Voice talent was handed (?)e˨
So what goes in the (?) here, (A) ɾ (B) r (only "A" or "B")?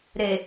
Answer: A